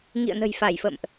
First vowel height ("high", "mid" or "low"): high